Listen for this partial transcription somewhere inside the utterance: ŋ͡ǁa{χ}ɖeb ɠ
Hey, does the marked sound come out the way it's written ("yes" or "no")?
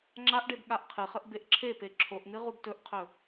no